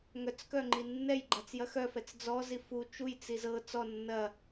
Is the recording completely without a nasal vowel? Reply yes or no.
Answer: yes